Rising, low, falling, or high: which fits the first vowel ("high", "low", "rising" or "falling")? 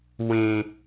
low